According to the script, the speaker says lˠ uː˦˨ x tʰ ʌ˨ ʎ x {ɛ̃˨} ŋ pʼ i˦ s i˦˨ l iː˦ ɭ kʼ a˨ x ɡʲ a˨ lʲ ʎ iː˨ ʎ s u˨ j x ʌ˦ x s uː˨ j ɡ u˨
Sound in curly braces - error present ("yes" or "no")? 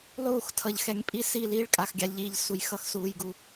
yes